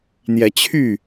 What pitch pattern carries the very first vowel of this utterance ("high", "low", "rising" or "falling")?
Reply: rising